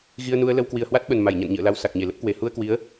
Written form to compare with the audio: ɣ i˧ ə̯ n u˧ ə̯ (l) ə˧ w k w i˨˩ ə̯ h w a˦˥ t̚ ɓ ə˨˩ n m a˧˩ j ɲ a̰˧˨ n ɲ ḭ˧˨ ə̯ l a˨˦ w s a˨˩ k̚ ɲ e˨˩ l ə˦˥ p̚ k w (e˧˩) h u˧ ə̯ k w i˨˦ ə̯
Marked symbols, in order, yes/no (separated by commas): yes, yes